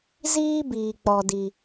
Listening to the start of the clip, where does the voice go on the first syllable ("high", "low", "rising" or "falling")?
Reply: high